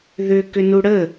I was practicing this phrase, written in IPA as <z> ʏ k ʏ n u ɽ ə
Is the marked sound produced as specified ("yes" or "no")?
no